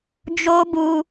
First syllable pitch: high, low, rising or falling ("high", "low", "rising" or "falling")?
high